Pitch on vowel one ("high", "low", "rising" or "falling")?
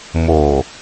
low